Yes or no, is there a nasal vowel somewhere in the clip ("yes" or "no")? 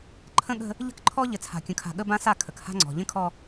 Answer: yes